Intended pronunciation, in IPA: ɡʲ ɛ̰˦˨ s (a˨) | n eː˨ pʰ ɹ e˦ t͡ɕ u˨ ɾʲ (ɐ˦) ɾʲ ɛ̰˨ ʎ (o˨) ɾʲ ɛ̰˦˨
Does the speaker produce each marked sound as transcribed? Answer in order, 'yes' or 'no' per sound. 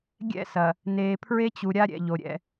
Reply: no, no, yes

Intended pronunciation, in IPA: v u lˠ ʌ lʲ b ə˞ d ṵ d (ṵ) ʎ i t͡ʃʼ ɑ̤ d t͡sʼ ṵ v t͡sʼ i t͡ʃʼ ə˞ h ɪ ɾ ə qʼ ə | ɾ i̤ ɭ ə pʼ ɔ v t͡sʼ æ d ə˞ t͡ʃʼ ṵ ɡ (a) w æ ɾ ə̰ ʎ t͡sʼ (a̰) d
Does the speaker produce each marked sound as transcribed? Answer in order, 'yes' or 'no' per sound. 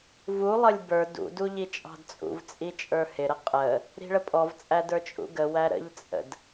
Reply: no, no, no

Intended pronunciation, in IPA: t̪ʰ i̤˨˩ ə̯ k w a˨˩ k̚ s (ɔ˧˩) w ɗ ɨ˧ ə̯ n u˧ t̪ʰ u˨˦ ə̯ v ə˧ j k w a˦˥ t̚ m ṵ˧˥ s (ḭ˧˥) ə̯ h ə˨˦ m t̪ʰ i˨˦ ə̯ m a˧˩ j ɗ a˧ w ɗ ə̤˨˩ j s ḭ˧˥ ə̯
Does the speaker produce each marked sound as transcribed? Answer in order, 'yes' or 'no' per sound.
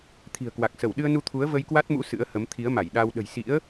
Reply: no, no

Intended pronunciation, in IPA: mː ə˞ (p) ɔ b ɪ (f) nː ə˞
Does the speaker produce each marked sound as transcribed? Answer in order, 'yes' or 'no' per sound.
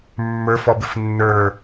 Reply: no, yes

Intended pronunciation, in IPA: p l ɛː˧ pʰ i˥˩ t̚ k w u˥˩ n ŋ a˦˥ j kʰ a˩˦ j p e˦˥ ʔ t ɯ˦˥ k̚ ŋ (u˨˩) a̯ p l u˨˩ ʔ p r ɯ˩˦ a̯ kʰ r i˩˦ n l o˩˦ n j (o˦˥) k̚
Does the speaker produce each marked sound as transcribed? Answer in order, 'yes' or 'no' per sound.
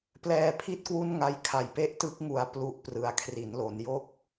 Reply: yes, no

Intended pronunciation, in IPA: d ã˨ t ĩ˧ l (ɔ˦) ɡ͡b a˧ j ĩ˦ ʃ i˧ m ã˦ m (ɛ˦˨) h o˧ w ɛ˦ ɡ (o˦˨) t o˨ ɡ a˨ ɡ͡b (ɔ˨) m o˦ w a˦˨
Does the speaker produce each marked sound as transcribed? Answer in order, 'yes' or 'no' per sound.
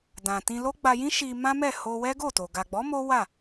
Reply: no, yes, yes, no

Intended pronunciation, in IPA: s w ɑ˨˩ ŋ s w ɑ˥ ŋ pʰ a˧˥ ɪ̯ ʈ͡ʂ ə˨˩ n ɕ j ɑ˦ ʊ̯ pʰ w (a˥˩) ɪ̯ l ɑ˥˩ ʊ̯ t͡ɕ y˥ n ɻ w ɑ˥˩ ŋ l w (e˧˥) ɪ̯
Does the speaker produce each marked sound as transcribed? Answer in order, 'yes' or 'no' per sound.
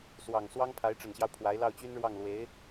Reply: no, yes

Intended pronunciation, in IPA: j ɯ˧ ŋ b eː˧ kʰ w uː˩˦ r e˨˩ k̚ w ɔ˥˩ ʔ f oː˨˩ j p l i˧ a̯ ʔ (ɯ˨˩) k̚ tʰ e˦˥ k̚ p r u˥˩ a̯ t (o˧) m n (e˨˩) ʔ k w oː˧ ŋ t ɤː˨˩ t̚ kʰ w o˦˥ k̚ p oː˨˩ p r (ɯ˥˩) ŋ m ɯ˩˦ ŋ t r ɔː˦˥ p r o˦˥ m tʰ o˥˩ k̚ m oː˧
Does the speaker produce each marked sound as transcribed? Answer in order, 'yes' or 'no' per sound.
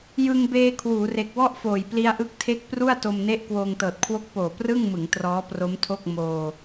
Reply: no, yes, no, yes

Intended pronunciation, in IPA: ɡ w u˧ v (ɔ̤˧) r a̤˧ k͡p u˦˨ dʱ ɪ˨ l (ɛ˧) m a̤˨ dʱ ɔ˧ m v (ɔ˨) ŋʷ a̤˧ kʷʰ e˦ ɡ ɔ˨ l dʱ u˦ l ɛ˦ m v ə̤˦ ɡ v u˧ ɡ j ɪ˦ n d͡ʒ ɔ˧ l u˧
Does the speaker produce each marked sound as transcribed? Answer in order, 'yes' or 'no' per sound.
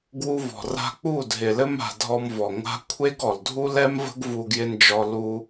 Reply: no, no, yes

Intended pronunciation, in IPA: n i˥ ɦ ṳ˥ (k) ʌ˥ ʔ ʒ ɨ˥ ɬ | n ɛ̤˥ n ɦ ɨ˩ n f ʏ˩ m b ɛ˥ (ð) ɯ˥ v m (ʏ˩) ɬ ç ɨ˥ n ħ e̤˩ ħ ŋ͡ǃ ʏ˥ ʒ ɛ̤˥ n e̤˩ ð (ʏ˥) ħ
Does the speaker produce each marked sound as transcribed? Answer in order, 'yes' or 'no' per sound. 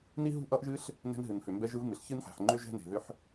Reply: no, no, no, yes

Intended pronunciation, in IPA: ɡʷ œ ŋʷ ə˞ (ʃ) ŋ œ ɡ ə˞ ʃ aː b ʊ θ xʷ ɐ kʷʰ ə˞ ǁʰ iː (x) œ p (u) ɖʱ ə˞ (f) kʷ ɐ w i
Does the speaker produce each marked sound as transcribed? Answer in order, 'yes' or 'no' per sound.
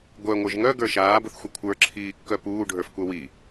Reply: no, no, no, yes

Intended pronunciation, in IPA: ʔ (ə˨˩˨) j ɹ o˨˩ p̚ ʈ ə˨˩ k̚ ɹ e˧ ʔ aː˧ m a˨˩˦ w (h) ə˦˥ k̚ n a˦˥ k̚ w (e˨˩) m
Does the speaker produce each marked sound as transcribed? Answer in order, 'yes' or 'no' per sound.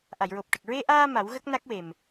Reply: no, no, yes

